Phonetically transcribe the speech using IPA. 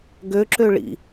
ɡ ø ǁ ø ɭ ḭ

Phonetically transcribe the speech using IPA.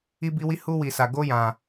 i˦ b i˦ w i˦ h u˦ w i˧ s a˧ ɡ o˦ j ã˧

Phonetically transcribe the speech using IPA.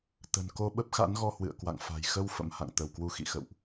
t̪ ə̤˨˩ n k o˧ ɓ ə˦˥ p̚ x a̰˧˥ n ɣ ɔ˧ h w ɨ̰˧˨ ə̯ k w a̰˧˨ ŋ f a̤˨˩ j x ə˧ w f ə̰˧˥ m h a̰˧˨ ŋ t̪ ə˧˩ w k w u˧ x ḭ˧˨ x ə̰˧˨ w ʔ

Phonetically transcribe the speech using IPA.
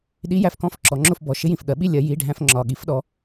ɗ i˧˥ j æ˧˥˧ f k ɔ̃˧˥ f ǁ ɔ˩˥ ŋ͡ǁ ʊ˥˧ f b ɔ˩˥ ʃ ɪ˧˥ j ĩ˨ f ɠ ɜ˩˥ ɓ i˥˧ lʲ ɜ˧˥ j i˧˥˧ ɖʱ æ̃˥˧ f ŋ͡ǁ ɒ˨ ɠ i˩˥ f ɗ ɔ˩˥

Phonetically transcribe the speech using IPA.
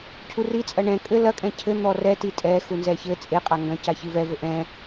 cʰ u r i t͡sʼ ɐ ɳ ɛ̃ kʼ ɘ l ɐ kʼ ɛ̃ cʰ ɘ n̪ ɔ r ɛ t i tʼ ɛ x u n z ɛ ç ɘ t͡sʼ e qʼ a ŋ ɡ ɐ̃ c a ç ɨ v ɛ v ɘ ʔ ɛ̃

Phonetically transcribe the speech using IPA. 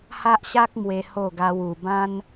h a˦ ʔ ɕ a˦ k̚ m w e˧ h o˥˧ ɡ a˦ w u˧ b ã˦ n

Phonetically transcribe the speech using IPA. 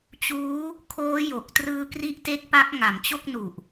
t͡ɕ uː˦˥ | kʰ oː˦˥ j o˨˩ k̚ t r ɯː˦˥ k r i˦˥ ʔ t e˦˥ k̚ p a˦˥ k̚ ŋ a˩˦ m t͡ɕ o˥˩ k̚ n u˨˩ ʔ

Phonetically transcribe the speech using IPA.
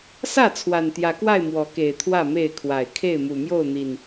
s ä˥˨ t͡sʰ w a˨˩ n t̪ j ä˨˦ k w a˥˨ ɪ̯ m w ɔ˨˦ k e˨˩ ɪ̯ t̪ʰ w ä˥˨ m e˥˨ ɪ̯ kʰ w a˨˩ ɪ̯ kʰ e˥˨ ɪ̯ m u˨˩ m j o˥˨ ʊ̯ n̪ i˨˩ n

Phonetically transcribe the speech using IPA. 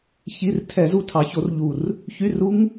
ç i˧˥˧ r tʰ ɛ˧˩˧ z u˦˨ tʰ ɑ˨˥ ç o˨˥ r ʎ u˨˩ r | ç y˧˥˧ r u˦˥ ŋ

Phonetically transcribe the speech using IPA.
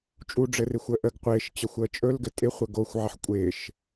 t͡ʃʼ u ɖ͡ʐ ɘ r ɪ xʷ əː ʔ ə ɡ qʷ ɪː ʃ t͡ɕ ə xʷ əː t͡ʃʼ ɵ l ɡ ɘ tʼ ɪ χʷ ə ɡ o xʷ ʕ ə ħ kʷʼ ɪː ʃ

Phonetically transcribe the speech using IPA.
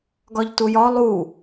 ɡ ɒ ʎ t u j ɒ lˠ u

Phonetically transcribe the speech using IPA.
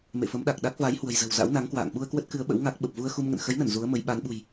m ḛ˧˨ f ə˨˦ m ɗ a˨˩ k̚ ɗ a˦˥ k̚ v a˨˦ j h w ə̤˨˩ j z ə̤˨˩ w z a̰˧˥ w n a˨˦ ŋ k w a̰ː˧˨ ŋ ɓ u˧ ə̯ k w ə˦˥ t̚ k ɨ˨˦ ə̯ ɓ ə̰˧˥ w ŋ a˦˥ k̚ ɓ ə˨˩ p̚ v u˧ ə̯ x u˧ m ŋ ə̰˧˨ n x ə˨˦ j n ə˧˩ n z u˨˦ ə̯ m ə˨˦ j ɓ a˨˦ n ɓ ṳ˨˩ j

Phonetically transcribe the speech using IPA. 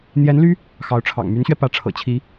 n̪ j ɛ˧˥ n l y˥ | x ɑ˧˥ ʊ̯ ʈ͡ʂʰ ɑ̰˨˩ ŋ m y˧˥ n ɕ ɥ ɛ˧ p ä˧˥ ʈ͡ʂʰ ɤ̰˨˩ t͡ɕʰ i˧˥

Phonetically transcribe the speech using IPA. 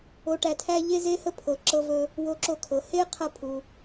o˧ ʈ æ˧ tʰ æ˥ ʎ e˥ z e˥ h ə˥ pʰ ɤ˩ ǁ ɤ˧ v ɵ˧ | w o˧ ǁ o˧ kʰ ɤ˩ h e˥ qʰ ɐ˧ pʰ u˩

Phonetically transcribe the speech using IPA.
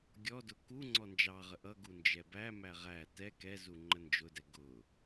ɡʲ ɔ d ʊ k u ŋ͡ǀ ɔ n d͡ʒ ɑ ʁ ə ʔ ʌ ɡ u n d͡ʒ ɛ b æ m æ ʁ æ t ɛ k ɛ z u ŋ͡ǃ ə n d͡ʒ ʊ d ɛ ɡ ʊ

